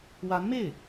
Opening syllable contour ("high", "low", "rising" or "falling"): rising